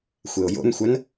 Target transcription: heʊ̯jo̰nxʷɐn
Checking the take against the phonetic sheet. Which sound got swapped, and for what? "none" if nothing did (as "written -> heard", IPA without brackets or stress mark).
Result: h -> xʷ